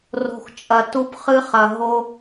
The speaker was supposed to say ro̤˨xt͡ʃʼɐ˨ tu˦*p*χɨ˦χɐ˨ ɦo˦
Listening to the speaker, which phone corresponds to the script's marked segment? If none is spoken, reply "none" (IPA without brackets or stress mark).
p